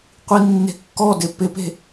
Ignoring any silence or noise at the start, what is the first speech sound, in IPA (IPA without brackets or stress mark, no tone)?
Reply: qʷ